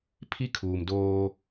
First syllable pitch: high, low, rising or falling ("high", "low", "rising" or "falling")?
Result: high